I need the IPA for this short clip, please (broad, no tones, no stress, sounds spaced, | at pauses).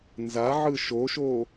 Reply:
n z a ʕ ɯ ʃ o ʃ o